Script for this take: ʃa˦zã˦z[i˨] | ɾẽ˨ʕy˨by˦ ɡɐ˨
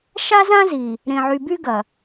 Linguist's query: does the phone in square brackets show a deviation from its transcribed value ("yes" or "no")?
no